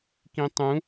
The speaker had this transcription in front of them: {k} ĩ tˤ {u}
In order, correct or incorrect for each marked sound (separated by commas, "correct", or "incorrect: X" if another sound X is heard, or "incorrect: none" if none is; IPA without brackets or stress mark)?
correct, incorrect: ũ